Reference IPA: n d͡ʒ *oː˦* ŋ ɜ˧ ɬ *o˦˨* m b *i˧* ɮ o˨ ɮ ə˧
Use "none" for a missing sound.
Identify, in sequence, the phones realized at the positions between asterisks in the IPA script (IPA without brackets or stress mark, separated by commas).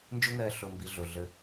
o˦, o˧, i˧